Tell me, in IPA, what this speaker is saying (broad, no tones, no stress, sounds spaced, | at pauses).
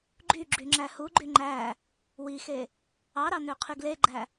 ɡ͡ǃ y ɡ͡ǁ y ŋ͡ǁ æ h u ɡ͡ǃ y ŋ͡ǃ æ | w i x e | ɑ ɾ ɑ n ø qʰ y ɡ l e ɡ͡ǃ æ